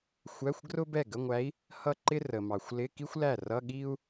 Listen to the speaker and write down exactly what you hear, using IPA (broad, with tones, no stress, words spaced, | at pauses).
xʷæ˧˥˧xʷɡrʊ˥ bɛ˥˩ɡə˧˥˧ŋʷæ˧˥i̯ | hʌ˥˩ǃɪ˥ rə˨mɑ˨xʷ lɪ˧˥˧ki˥xʷlæ˥˩rʌ˧˥˧ ɠi˥u̯